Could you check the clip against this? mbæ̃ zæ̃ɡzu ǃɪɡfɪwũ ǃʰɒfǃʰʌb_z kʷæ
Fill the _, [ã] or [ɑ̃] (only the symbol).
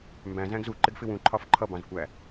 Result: ɑ̃